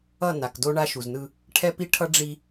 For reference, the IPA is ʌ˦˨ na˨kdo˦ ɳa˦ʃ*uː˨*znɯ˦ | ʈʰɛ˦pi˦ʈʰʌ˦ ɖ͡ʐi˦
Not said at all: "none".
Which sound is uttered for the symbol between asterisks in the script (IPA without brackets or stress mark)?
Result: u˨